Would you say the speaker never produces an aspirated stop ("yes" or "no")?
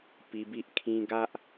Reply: no